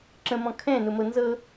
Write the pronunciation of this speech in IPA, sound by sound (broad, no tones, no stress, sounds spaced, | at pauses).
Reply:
ǁ ə̃ m ɔ̃ kʰ ɛ̃ n ʊ m ɤ n z ɤ